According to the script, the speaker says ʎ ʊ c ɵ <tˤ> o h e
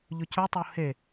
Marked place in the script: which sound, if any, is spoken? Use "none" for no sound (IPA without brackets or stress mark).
tˤ